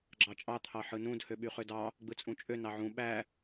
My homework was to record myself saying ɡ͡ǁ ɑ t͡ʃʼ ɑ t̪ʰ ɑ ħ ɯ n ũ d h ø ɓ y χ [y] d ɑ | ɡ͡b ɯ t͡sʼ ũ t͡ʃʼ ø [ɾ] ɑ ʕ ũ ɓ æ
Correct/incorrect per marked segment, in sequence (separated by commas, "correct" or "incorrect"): incorrect, incorrect